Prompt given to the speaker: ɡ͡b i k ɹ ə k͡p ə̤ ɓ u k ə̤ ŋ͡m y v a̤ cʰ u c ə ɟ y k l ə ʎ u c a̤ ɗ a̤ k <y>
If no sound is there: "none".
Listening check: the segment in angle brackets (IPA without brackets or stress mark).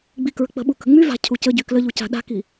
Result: i